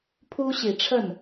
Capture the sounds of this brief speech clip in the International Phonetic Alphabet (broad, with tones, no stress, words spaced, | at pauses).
pʰu˥ɕi˨˩ʈ͡ʂʰə˥˩n